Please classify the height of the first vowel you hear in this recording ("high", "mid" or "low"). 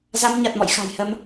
low